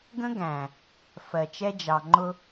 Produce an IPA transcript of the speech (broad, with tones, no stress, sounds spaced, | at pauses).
ɡ ə̃˦ ɡ æ̃˨ | f ɜ˨ t͡ʃ ɛ˦ d͡ʒ ɑ˨ ŋ͡ǃ ʊ˦